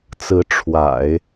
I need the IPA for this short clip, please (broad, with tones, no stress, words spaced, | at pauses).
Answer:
t͡sɹ̩˧˥ ʈ͡ʂʰwa̰˨˩˦ɪ̯